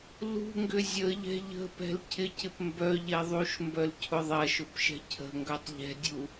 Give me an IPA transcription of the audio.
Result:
lṳŋɡʏ zʲəʎɛ̤ ʎə̤pɛ̤l cʰɪcɪp mbœʎɛ ðˤuʃmbœl cʰʊðˤɐʃʊp ʃɛ̤cʰə̤ŋɡœtˤ ʎɛ̤dʲu

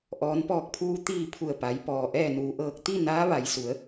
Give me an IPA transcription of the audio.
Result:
ʔɔː˩˧npɔː˧˩k̚pʰuː˧ t̪iː˧˩ pʰu˧˩ə̯pa˩˧jpɔː˩ ʔɛː˧˩nuː˩ʔɤː˧˩k̚ t̪i˥˨ naː˧˥ʋa˩˧jsu˩˧ə̯

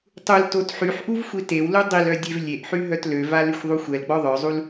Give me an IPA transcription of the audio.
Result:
tˤul totħyħʔuv xʷitewlu dˤilœ dʲevlʲeʔħy ɦœtløva lyxʷðˤuxʷɛlɡ͡bɔ ðˤœzˤul

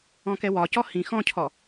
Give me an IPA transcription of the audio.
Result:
ɔ̃kɛwɒcɔ hĩ xɔ̃cʰɔ

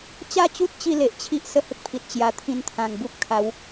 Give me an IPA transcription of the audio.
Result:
t͡ɕa˥˧t͡ɕu˦t̚ t͡ɕi˥˧le˨ʔt͡ɕʰi˦ʔ sə˦hə˦k̚pʰi˨t̚ t͡ɕja˨˩t̪ʰĩ˧nt̪ʰã˨˩ŋ bu˦p̚ kʰa˨˦w

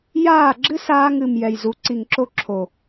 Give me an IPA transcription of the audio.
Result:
jaː˦˨ɡ͡ǁɨ˦saː˧ŋ ɨ˨m jɛ˨jzu˨˦ǀi˨ŋǁo˦ ǁʰo˨

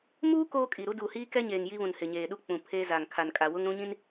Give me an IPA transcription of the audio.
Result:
muː˦ koː˦kʼi˨ɾu˦ duː˨hiː˦kɛ˦ɲeː˨ŋ ji˦βũ˨n hɪ˨ɲeː˨ɗu˦ k͡pũ˨pʰeː˦za˨ŋ kʰa˨nkʼa˨ wʊ˦ŋɾũ˦ɲĩ˦n

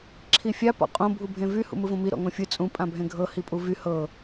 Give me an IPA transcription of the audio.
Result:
ǁʰifʲa pɔ̰qʼõ bʱubʱẽvy hṵmɯvõmi ɾɔ̰ŋõfʲɯ t͡sʼũ pʼãbʱẽɡʱɤ hipʼuvy hɤ

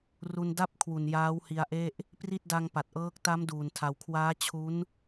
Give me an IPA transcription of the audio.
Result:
ru˧n da˥˩p̚kʰwu˨˩n jaː˦˥whi˧a̯ʔe˥˩ʔ | pri˥˩t̚da˧ŋ pa˨˩t̚ʔɤː˦˥k̚ ta˦˥m duː˨˩ntʰa˨˩wkʰwaː˦˥ t͡ɕʰu˦˥n

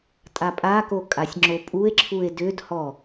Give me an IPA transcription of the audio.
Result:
tʼapʼako kʼasʲŋ͡ǁopʼue̯ǁʰue̯ dʏdhɔ

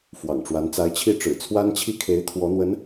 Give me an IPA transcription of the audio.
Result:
fwɑ̰˨˩ŋʈ͡ʂwa˧˥n t͡sa˧˥ɪ̯t͡ɕʰi˥˩ ʈ͡ʂɻ̩˨˩t͡sʰwa˥nt͡ɕʰi˥˩kʰe˧˥ɪ̯ t̪ʰwɔ˧˥n̪wə˧˥n

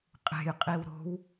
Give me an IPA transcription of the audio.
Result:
qʼe̤j qʼiwɾo̤w

